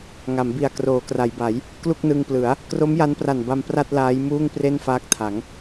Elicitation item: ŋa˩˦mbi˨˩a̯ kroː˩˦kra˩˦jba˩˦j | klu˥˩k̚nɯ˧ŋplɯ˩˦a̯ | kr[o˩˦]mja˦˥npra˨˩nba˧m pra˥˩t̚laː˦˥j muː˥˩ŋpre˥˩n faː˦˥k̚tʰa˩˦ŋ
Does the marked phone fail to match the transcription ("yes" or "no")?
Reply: yes